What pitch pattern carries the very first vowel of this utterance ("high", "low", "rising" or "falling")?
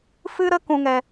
high